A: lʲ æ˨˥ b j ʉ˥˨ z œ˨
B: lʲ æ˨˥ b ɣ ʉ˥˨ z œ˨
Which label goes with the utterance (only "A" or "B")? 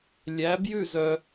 A